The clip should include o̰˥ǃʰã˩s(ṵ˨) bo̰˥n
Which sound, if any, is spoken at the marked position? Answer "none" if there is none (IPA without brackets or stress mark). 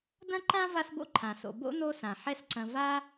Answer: o̰˨